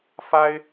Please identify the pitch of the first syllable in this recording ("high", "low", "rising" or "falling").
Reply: high